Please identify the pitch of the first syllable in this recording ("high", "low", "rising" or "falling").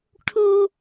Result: high